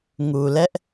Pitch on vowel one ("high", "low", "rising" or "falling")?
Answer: low